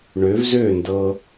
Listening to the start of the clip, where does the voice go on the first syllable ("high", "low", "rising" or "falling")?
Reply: rising